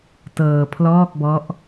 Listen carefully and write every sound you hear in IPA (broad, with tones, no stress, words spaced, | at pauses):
tɤː˧pʰlɔː˥˩k̚ bɔ˦˥ʔ